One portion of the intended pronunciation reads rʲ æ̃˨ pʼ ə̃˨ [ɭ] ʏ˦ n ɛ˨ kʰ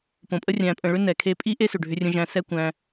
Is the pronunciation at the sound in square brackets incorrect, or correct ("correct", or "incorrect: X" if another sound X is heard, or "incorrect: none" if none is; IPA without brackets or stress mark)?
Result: correct